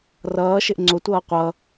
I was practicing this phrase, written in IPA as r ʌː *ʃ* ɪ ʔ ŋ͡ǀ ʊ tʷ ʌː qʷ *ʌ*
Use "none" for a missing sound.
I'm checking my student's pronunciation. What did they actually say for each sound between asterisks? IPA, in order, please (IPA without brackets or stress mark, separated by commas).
ʃ, ʌ